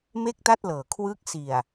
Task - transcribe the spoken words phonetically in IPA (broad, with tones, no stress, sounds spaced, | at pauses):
m e˥˩ k̚ t a˥˩ t̚ l ɤː˨˩ kʰ w ɯː˦˥ k̚ s i˨˩ a̯